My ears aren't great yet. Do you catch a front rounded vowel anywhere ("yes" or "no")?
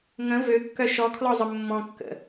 yes